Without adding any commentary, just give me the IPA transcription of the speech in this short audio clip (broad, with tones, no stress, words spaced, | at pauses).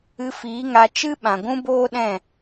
ɨ˧ fiː˨˦ŋa˧ t͡ʃɨ˦ɓã˨ ɡʷũ˦boː˦ɗɛ̃˦˨